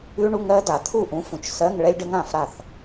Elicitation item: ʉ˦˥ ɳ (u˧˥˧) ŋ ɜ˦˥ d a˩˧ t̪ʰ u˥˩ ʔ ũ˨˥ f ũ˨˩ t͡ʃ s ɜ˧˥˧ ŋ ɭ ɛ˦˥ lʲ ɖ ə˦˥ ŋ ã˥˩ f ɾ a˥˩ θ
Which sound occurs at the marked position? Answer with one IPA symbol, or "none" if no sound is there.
u˧˥˧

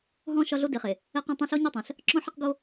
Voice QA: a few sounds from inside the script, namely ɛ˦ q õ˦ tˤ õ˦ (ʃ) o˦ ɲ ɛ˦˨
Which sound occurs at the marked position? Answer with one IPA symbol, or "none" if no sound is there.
ɬ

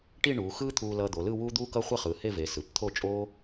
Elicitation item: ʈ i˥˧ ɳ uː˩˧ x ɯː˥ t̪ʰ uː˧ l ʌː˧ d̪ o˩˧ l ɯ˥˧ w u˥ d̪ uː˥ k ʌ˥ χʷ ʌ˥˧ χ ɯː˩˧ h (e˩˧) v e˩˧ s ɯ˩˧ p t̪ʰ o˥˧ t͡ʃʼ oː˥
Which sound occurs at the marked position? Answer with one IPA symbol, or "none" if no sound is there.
e˥˧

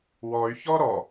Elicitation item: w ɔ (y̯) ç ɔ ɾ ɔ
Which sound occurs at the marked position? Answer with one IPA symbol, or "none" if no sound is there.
y̯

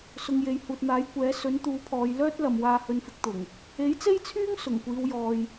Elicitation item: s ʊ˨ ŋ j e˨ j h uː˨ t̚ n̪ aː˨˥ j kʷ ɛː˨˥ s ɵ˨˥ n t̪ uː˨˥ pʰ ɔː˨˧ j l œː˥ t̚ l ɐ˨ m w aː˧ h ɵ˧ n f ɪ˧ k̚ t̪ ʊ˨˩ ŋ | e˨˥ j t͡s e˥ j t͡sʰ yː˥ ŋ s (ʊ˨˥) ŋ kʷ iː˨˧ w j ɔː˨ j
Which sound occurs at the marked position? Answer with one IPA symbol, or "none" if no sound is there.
ʊ˨˩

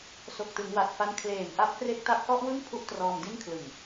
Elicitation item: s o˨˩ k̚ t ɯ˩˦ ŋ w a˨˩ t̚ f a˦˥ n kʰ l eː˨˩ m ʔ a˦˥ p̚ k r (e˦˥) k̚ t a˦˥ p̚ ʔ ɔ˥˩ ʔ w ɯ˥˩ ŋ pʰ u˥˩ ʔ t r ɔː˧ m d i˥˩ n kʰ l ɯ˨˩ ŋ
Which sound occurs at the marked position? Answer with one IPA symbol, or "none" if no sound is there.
e˦˥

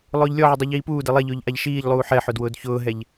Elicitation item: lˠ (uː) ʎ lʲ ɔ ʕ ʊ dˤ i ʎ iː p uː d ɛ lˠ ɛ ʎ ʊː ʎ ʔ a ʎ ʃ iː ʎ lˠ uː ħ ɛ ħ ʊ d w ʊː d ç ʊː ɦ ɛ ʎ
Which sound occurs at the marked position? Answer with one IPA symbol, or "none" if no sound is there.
ʊː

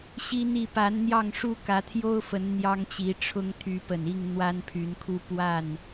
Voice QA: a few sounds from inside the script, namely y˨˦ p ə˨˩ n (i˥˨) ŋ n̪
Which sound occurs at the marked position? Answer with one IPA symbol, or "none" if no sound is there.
i˥˨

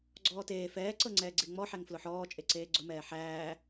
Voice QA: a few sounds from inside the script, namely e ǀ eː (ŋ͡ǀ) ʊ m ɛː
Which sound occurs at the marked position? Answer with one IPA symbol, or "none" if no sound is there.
ɡ͡ǀ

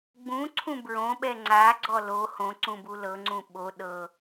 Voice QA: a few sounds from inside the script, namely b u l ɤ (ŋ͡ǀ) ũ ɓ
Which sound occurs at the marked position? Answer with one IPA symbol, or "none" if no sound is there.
ŋ͡ǀ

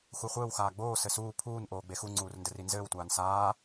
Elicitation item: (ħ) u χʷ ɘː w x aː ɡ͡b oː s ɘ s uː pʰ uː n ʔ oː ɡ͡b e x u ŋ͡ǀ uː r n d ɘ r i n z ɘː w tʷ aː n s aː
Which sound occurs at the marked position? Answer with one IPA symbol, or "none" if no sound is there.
x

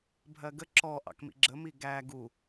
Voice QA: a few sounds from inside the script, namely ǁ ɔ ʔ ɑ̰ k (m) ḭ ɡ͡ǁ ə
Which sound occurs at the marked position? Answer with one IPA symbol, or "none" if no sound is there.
m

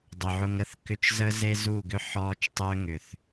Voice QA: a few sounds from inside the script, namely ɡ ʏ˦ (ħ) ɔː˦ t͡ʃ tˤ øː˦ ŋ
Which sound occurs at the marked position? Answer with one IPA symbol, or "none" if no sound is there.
ħ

